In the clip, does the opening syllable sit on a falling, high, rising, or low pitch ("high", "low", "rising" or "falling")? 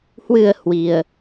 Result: low